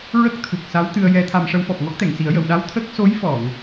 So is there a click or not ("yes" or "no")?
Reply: no